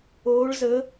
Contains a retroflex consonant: yes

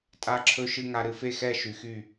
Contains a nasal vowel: no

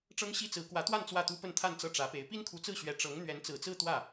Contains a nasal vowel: no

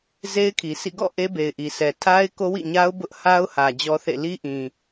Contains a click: no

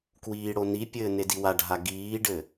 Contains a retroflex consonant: yes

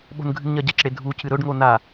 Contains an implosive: yes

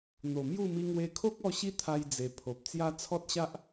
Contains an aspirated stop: yes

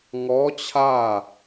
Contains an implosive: no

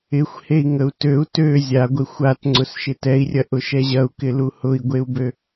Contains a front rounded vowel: yes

